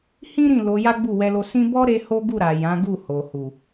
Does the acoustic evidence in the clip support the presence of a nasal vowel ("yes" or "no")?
yes